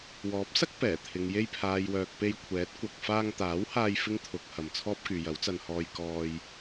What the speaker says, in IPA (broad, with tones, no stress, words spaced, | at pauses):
wɔː˨˥p̚sɐ˥k̚ pɛː˨˩t̪ʰɪ˨ŋ je˧jpʰaː˨jwœː˨k̚ pe˧jkʷʰɛː˨˥t̚ kʷɐ˨k̚faː˧ŋt̪aː˨˥whaː˧j fɪ˥ŋt̪ʰʊ˨˥k̚ hɐ˨mt͡sʰɔː˥p̚kyː˨ jɐ˨˥wt͡sɐ˧nhɔː˧j kɔː˧j